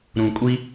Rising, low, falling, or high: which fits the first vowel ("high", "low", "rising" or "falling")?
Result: low